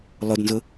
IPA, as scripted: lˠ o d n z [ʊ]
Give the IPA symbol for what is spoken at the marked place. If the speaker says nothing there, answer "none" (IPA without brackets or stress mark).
ʊ